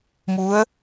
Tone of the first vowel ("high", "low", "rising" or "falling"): rising